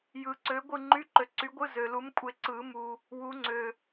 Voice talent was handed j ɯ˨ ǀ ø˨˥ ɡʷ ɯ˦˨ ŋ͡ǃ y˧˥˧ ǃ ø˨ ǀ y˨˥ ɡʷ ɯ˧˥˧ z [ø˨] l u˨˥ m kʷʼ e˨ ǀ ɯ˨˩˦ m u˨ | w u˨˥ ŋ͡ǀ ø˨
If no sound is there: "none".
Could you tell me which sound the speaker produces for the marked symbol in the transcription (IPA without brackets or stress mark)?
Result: ø˨